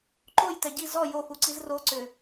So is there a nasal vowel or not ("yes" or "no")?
no